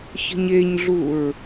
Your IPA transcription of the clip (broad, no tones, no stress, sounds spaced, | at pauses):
ç ə̤ ɲ e ɲ ɮ u ɹ